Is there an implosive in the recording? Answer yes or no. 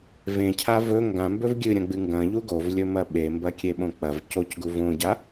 yes